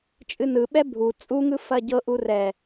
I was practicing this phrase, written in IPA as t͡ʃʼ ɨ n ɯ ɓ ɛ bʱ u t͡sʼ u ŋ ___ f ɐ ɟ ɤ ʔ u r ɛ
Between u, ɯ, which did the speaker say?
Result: ɯ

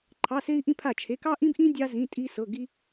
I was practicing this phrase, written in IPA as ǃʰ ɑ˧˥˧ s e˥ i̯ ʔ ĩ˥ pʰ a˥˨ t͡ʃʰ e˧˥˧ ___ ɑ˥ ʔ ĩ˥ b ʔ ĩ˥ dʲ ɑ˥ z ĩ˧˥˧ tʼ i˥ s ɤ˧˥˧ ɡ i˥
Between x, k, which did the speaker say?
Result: k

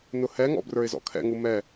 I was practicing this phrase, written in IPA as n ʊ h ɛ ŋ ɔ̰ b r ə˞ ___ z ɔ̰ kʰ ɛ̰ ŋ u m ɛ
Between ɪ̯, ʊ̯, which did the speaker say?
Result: ɪ̯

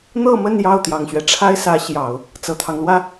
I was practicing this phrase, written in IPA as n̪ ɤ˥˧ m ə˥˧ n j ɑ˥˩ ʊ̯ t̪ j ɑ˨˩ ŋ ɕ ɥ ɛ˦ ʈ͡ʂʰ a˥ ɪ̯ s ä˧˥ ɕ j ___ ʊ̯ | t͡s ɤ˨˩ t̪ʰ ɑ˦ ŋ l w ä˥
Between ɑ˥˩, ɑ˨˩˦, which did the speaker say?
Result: ɑ˨˩˦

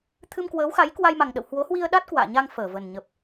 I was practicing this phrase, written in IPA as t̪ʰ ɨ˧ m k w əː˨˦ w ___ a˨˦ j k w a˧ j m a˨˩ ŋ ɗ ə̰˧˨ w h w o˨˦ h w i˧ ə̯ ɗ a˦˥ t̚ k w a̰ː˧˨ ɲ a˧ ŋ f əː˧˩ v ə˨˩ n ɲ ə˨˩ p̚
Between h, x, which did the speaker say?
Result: x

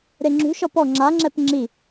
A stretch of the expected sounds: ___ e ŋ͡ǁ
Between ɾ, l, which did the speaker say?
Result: ɾ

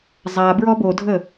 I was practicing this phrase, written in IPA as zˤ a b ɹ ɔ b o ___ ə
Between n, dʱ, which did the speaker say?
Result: dʱ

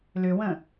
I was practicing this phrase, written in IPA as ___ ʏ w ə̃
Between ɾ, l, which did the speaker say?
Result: l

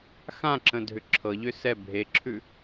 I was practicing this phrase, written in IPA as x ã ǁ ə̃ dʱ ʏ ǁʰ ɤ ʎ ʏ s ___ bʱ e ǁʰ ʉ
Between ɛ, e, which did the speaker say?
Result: ɛ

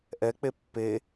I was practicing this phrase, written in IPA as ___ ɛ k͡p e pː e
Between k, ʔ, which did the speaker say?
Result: ʔ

